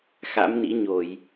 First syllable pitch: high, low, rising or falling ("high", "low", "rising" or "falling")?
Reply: rising